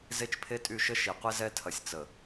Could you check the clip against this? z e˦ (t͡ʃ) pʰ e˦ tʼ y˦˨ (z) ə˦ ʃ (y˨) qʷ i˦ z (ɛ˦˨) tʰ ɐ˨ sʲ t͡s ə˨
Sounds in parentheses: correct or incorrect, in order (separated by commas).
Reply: correct, incorrect, incorrect, incorrect